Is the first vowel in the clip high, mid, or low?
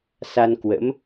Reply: low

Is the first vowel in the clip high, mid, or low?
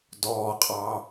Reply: mid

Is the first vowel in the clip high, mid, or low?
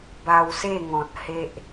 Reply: low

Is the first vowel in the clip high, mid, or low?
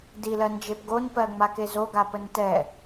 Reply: high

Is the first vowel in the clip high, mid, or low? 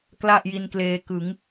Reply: low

